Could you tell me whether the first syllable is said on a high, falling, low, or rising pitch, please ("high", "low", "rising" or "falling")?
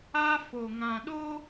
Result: high